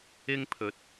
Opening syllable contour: high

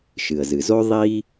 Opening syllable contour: low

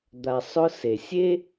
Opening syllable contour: low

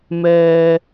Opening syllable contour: low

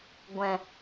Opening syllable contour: low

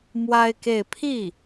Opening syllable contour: high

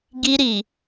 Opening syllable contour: high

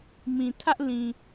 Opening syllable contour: low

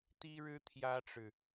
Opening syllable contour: high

